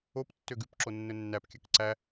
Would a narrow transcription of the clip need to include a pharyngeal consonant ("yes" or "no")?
no